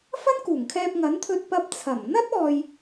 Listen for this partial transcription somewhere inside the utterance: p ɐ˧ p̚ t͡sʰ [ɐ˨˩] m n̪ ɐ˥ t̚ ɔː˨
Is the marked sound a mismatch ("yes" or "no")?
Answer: no